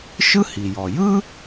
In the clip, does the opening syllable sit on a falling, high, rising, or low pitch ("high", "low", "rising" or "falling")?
high